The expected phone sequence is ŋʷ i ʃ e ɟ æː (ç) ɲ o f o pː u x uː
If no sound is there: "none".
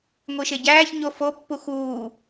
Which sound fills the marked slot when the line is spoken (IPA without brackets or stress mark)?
ç